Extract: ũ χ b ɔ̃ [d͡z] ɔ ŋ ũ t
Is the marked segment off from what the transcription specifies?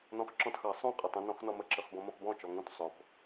yes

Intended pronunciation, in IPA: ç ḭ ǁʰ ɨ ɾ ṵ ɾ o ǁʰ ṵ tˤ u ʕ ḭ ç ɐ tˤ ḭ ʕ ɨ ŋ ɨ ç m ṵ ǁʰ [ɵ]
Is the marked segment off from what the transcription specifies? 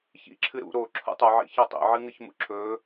no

